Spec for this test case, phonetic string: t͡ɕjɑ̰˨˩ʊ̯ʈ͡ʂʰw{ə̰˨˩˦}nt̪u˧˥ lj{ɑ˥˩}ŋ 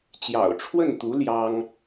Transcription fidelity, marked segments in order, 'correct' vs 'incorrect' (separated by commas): incorrect, incorrect